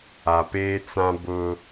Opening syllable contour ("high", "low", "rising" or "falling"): low